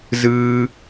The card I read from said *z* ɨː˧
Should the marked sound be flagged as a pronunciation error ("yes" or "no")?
no